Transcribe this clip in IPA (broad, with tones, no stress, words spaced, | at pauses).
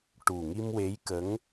ʈu˨˩ŋi˧mwe˧˥jkə˧˥ŋ